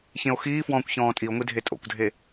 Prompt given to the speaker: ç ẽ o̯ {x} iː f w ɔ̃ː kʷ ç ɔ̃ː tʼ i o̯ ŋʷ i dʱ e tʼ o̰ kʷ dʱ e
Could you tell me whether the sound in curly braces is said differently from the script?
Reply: no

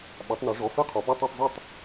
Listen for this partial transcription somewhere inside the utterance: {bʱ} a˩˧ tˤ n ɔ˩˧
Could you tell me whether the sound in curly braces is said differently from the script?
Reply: yes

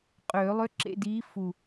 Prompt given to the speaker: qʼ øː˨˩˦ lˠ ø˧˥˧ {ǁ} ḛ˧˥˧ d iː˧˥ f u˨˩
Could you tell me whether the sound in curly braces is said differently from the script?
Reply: no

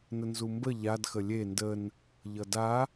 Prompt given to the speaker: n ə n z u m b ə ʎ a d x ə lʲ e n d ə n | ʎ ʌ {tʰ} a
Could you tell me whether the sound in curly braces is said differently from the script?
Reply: yes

